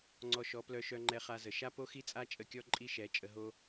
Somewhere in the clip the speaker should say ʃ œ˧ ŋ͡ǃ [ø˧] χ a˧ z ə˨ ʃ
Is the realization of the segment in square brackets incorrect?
yes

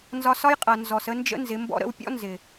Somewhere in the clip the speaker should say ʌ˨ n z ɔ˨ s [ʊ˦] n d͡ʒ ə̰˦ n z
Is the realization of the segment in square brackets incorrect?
yes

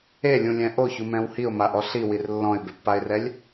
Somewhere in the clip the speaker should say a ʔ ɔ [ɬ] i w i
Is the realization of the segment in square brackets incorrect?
no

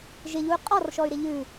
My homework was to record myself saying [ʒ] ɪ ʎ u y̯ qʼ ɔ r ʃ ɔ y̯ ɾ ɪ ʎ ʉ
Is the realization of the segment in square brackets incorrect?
no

